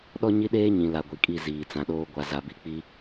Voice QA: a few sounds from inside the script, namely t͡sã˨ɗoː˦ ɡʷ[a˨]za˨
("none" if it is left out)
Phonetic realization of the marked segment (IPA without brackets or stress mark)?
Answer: a˨